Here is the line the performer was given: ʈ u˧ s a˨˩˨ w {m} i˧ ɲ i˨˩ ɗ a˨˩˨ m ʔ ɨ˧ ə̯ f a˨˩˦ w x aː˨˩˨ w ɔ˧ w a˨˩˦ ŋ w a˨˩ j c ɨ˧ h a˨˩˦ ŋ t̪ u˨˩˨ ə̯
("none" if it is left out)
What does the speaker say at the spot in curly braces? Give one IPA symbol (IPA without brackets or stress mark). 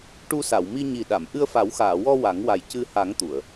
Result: m